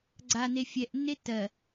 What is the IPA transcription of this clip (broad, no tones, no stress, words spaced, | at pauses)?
ɡ͡ǀa nefʲɛʔnːe tɜ